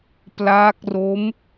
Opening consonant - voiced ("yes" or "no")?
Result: no